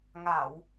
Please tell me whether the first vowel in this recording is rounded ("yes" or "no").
no